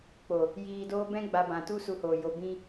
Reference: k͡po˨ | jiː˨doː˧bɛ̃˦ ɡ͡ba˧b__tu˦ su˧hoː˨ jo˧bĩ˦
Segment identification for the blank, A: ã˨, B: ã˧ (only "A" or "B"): A